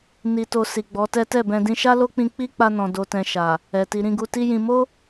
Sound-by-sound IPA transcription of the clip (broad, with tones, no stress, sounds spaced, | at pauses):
n i˨ t o˨ s i˨ ɡ͡b ɔ˨˦ t ɛ˦ t ɛ˦˨ b ɛ̃˧ d ĩ˧ ʃ a˦ l o˦ k͡p ĩ˧ k͡p i˦ k͡p a˧ n ɔ̃˨ d o˧ t ɛ̃˧ ʃ a˨ | ɛ˨ t i˨ ɾ ĩ˧ ɡ u˧ t i˦ j ĩ˧ m o˦